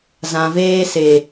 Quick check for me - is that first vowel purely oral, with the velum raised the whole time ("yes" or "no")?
no